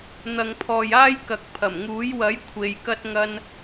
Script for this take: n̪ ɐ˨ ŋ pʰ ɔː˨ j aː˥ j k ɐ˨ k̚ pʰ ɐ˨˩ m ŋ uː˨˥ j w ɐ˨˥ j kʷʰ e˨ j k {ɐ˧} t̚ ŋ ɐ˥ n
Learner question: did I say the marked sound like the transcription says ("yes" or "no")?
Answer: no